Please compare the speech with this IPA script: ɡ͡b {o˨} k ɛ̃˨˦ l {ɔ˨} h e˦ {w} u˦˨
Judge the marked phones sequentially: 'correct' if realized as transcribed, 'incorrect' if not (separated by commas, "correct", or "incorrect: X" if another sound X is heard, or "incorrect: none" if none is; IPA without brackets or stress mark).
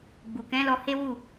incorrect: u˨, incorrect: ɔ˧, correct